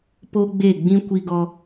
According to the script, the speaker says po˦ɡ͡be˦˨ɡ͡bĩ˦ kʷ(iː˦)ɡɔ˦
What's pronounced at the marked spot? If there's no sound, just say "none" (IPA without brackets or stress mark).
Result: i˦